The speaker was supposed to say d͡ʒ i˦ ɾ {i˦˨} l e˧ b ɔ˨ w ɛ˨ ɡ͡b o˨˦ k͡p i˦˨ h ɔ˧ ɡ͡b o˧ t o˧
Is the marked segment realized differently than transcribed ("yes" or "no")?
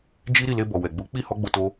no